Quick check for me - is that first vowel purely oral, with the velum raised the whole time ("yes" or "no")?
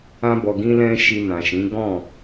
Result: no